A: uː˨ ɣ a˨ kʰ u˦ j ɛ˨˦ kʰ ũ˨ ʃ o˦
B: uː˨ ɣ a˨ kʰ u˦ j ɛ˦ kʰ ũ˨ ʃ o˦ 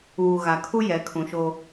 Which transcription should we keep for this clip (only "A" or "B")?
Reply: A